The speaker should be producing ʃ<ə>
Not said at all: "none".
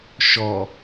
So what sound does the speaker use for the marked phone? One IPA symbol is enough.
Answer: ɔ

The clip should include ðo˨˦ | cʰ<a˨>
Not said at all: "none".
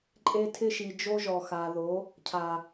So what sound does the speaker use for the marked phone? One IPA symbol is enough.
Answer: a˨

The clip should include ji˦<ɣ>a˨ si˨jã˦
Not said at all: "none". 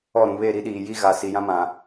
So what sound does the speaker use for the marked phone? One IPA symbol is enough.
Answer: ɣ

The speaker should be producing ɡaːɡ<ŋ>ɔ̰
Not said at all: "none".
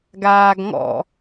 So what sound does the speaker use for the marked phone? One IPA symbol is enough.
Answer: ŋ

